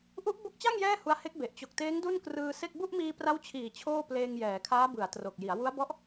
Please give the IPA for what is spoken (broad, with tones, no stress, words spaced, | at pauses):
ʔu˦˥ʔbo˦˥k̚t͡ɕa˥˩ŋ jɛː˥˩hu˧a̯ he˦˥k̚ be˨˩ʔ t͡ɕo˨˩k̚teː˦˥ŋ du˥˩nkrɯː˧se˥˩k̚ bu˥˩ʔmiː˧pra˦˥wt͡ɕʰiː˨˩ t͡ɕʰoː˥˩pleː˧ŋjɛː˩˦ kʰaː˦˥bɯ˩˦a̯tro˨˩k̚ ji˩˦a̯wu˦˥a̯bɔ˦˥ʔ